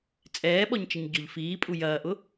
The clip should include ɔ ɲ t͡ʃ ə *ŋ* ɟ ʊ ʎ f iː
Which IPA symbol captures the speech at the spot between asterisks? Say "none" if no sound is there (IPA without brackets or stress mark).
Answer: ɲ